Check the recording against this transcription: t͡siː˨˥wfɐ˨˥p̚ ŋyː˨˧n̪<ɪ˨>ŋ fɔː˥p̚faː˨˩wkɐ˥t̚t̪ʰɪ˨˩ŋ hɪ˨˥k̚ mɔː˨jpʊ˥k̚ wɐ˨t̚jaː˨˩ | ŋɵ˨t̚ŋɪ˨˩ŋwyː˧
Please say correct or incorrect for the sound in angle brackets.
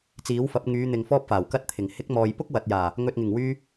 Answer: correct